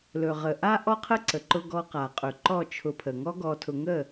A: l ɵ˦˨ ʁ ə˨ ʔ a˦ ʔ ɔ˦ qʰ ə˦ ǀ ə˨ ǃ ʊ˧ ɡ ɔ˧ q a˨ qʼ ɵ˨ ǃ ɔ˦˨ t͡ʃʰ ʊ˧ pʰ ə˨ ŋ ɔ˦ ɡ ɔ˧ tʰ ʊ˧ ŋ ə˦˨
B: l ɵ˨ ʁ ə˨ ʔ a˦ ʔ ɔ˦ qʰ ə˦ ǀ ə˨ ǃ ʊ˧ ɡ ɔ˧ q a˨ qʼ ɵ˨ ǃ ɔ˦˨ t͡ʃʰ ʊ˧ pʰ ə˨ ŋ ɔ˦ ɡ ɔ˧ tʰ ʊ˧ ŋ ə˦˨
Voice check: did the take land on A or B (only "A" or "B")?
B